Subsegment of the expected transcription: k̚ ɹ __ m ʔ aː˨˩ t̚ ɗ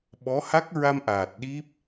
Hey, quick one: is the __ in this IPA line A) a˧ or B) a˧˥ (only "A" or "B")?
A